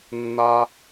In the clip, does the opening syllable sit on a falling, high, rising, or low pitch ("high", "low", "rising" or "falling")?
high